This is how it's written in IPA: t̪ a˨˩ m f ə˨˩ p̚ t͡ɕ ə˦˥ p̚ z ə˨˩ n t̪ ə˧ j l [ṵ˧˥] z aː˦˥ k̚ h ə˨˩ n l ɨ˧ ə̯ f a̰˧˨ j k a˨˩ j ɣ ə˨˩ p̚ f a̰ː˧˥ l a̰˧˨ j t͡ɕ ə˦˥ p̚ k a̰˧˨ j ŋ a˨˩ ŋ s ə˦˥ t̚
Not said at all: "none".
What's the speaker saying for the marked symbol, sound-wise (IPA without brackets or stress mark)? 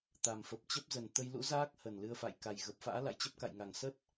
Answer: ṵ˧˥